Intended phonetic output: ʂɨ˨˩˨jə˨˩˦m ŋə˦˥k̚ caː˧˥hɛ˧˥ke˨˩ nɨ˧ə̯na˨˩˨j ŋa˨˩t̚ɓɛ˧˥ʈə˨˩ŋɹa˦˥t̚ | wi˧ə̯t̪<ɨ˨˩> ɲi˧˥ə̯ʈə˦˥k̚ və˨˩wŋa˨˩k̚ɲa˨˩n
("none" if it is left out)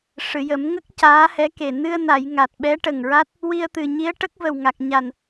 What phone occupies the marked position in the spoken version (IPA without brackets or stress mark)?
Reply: ɨ˨˩